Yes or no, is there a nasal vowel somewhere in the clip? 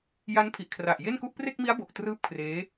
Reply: no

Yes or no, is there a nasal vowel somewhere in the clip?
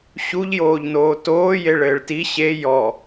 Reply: no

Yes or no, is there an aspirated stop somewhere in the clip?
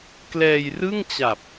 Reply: no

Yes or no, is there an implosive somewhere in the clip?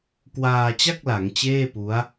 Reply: no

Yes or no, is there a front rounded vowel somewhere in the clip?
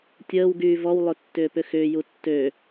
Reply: yes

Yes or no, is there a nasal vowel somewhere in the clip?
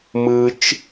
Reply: no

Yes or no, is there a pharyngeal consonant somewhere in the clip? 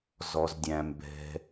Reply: no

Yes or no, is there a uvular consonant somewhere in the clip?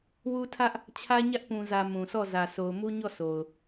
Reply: no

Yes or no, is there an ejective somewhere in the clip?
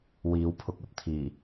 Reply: no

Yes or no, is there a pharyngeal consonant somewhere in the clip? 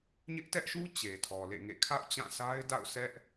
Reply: no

